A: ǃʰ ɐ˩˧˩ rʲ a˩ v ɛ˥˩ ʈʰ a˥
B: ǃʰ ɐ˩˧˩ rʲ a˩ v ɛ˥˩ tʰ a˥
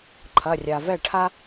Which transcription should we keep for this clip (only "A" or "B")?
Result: A